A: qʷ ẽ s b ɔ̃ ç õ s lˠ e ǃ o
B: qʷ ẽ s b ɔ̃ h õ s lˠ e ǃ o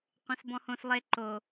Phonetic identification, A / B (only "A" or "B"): B